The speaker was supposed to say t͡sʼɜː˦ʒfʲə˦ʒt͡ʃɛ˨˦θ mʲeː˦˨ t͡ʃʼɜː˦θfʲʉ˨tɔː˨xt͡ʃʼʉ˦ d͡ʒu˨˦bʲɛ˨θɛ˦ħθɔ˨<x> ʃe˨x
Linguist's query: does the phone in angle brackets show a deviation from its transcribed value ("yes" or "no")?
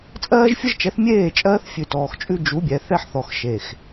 no